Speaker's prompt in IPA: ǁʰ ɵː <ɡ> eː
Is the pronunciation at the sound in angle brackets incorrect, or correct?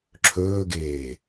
correct